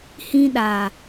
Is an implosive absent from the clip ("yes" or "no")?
no